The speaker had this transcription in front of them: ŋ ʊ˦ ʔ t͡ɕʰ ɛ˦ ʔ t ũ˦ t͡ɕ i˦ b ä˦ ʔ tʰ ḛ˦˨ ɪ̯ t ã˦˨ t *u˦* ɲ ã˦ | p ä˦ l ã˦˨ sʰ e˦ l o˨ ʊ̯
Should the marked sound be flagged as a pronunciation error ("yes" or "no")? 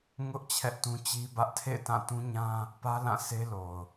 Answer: yes